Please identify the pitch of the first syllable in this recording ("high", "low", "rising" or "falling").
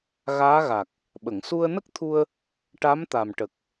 rising